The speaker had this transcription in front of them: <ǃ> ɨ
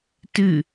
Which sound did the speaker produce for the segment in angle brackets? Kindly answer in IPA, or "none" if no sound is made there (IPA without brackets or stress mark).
t